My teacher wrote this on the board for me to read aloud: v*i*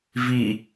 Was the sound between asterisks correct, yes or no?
yes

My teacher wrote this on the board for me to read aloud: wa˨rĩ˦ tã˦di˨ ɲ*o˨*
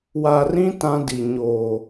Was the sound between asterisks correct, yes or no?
yes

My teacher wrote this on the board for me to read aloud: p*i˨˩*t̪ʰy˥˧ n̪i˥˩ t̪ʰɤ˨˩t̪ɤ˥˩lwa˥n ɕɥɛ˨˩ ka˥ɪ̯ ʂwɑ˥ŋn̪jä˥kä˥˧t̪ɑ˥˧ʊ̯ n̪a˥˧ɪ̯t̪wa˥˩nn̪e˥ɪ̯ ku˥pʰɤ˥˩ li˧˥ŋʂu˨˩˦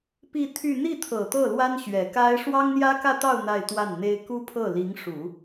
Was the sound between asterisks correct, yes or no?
no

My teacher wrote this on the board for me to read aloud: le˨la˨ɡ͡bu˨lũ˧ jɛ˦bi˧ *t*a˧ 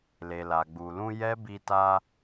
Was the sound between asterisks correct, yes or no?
yes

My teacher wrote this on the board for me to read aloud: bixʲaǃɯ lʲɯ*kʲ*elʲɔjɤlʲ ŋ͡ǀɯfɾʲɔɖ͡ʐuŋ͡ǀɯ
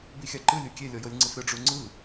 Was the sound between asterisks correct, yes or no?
yes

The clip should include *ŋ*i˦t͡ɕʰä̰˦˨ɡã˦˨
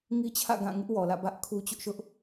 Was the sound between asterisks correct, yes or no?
yes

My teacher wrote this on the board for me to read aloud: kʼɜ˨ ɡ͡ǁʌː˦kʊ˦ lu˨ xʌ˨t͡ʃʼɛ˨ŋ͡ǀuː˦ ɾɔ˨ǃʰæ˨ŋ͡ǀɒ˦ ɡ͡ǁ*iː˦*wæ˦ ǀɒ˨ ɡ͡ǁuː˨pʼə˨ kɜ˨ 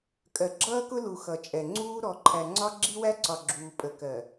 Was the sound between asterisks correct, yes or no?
no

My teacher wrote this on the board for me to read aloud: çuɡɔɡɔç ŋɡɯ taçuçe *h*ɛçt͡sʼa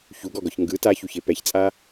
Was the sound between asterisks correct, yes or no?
no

